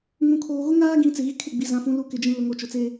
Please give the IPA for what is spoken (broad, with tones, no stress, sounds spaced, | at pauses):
ŋ ũ˨ kʰ oː˨ ɣ ʊ˦ ŋ aː˦ ɡ ĩ˨˦ t͡s ɪ˨ ɣ i˦ kʰ ɪ˦˨ ɡ͡b i˨ z ã˨ f ũ˨ l u˨ k ɪ˨ d͡ʒ ĩ˨ l ʊ˨ ŋ o˨ t͡ʃ ʊ˨ t͡s e˦